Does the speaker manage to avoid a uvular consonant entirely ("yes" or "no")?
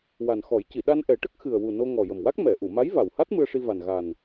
yes